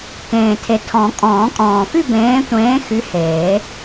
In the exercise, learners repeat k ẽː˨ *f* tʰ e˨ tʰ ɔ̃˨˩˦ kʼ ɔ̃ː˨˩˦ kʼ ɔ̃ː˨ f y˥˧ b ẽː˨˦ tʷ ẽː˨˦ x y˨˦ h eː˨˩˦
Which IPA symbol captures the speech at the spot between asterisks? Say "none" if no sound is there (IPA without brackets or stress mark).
none